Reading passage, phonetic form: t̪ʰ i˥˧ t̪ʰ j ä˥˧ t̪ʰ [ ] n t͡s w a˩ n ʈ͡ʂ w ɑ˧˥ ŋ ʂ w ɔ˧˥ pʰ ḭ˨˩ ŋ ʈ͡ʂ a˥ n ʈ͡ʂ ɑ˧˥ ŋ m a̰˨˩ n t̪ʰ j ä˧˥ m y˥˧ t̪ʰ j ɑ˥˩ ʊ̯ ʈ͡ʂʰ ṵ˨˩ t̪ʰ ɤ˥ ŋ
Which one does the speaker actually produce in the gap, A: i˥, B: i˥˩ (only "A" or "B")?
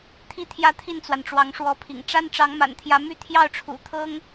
B